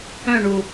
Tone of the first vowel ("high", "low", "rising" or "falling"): falling